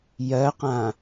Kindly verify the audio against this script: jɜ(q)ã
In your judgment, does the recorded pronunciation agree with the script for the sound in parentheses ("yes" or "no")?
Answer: yes